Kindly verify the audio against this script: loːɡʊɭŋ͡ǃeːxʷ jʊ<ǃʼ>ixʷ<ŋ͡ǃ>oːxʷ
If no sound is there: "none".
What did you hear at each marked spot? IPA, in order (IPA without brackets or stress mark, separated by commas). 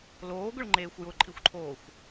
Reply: ǃʼ, ǃʰ